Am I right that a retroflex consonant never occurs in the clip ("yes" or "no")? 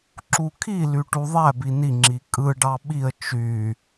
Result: no